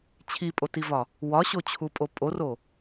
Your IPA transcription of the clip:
t͡ɕʰ i pʼ o t i v ɒ | w ɒ ɕ o t͡ɕʰ u pʼ o pʼ o r o

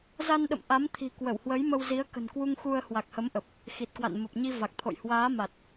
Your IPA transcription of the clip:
z a˧ n ɗ ə̰˧˨ m ʔ a˨˦ m t̪ʰ i̤˨˩ k w ə˧˩ w h w ə˨˦ j m ə˧ w z i˨˦ ə̯ k ə̤˨˩ n k w u˧ ŋ x u˧ ə̯ h w a˨˩ k̚ h ə˨˦ m ʔ ə˨˩ p̚ | x i˨˩ t̚ k w a̰˧˨ n m ə˨˩ p̚ ɲ i˧ v a˨˩ k̚ t̪ʰ o̰˧˨ j h w aː˨˦ m a˨˩ t̚

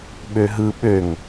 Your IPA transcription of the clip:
ɓ ø ɦ ɯ ɓ ø ŋ

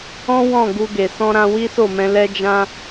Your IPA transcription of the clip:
ɔ̃˦ w ɔ̃˦˨ ɡ u˧ ɡ e˨ s ɔ̃˧ ɾ ã˧ w i˦ s o˦˨ m ɛ̃˧ l ɛ˧ d͡ʒ ã˧

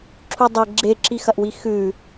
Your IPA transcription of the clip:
ǁʰ u dˤ e ɡ͡ǁ e ǁ i x ɐ ʔ w i x ʉ

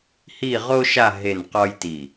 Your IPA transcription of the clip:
h i˥˧ ʁ o˥ ʃ a˥˧ ɦ e˥˧ n q ɔ˥ j t i˧˩

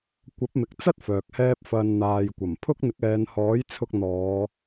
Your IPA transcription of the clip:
kʷ ɐ˨˥ p̚ m ɪ˨ k̚ t͡s ɐ˥ t̚ f œː˨ k̚ h ɛː˥ p̚ f ɐ˧ n n̪ aː˨ j kʷ ɐ˨˩ m pʰ ʊ˥ k̚ n̪ ɪ˨˥ k̚ ɛː˨˧ n h ɔː˨˥ j t͡sʰ ʊ˧ k̚ n̪ ɔː˨˧

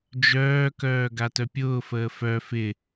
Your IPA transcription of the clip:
d͡ʒ œː k œː ɡ a t œ pʲ ʊː f əː f œ f ɪ

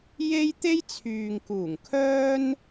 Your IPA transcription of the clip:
j e˥ j t̪ e˥ j t͡sʰ yː˨ ŋ k uː˨˩ ŋ kʰ œː˥ n

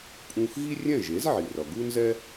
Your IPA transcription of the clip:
pʼ ũ˧ x ɣ i˥ rʲ ɛ̃˥˩ ʒ e˩˥ z ʕ i˩ r ʌ˩ ɡ u˥ n z ɛ˥

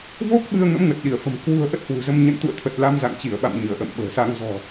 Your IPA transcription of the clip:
v o˦˥ k̚ ɓ ɨ˧ ə̯ ŋ ə̰˧˥ m ŋ ə˨˩ t̚ ɗ i˧˩ ə̯ f ə̤˨˩ m k w ṳ˨˩ ə̯ ʔ ə˦˥ t̚ h w ṳ˨˩ z ə˧ m ɲ ə̰˧˨ n t̪ ṵ˧˨ ə̯ t̪ʰ ə˨˩ t̚ l a˧ m z a̰˧˨ ŋ t͡ɕ i˧˩ ə̯ ɓ a̰˧˨ m ɲ ɨ˧˩ ə̯ ʔ ə̰ː˧˨ m ɓ ə̤ː˨˩ s a˧ ŋ z ɔ̤˨˩

